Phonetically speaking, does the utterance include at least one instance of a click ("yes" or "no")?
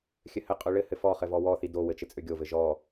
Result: no